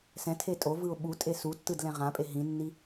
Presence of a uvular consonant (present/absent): present